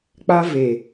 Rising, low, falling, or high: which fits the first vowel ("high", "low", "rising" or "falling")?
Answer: high